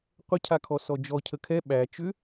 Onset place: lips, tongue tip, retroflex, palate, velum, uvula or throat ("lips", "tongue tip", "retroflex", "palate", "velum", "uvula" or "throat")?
uvula